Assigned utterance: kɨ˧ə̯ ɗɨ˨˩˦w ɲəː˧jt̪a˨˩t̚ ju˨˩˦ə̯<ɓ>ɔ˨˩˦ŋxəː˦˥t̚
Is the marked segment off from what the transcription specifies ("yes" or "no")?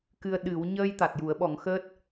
no